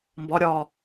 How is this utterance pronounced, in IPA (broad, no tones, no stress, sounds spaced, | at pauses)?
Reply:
m b ɒ ɾʲ ɒː